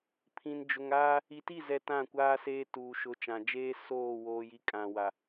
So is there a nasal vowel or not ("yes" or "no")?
yes